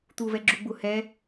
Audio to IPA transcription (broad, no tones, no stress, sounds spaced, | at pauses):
t̪ u v ɛ ɡ͡ǁ u ɡ͡b u h ɛ